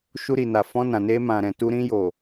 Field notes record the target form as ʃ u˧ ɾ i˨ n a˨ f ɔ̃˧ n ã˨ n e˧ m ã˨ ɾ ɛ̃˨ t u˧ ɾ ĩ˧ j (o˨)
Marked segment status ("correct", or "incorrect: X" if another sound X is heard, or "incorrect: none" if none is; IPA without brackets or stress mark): correct